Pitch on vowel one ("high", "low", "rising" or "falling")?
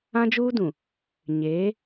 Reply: high